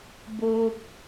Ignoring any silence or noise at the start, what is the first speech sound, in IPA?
b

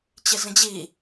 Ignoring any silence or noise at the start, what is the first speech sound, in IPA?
t͡ɕ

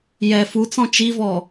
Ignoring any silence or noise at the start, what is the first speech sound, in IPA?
j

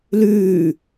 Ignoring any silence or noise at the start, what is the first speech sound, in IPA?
l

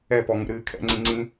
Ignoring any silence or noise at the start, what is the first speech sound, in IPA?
ɛ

